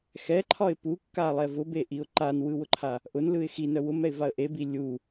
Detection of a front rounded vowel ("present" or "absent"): present